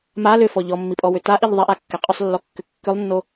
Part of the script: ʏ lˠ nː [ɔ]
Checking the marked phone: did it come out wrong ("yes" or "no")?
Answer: yes